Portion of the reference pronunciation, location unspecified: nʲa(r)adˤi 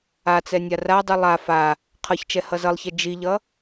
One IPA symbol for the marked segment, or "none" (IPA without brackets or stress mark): r